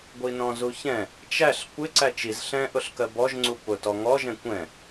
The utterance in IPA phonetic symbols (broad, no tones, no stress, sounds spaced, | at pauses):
ɡʷ i n ɔ̃ z u ç ɛ̃ | t͡ʃ æ ɬ kʷ ɪ ǀ æ t͡ʃ i z ɬ ɛ̃ ʔ ʊ ɬ k ɜ b ɔ ʒ ŋ͡ǀ u p ʊ t ɔ ŋ ɔ ʒ ɛ̃ kʷ ɛ̃